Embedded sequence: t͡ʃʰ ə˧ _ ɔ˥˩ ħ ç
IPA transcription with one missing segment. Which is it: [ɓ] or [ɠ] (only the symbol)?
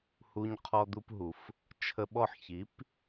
ɓ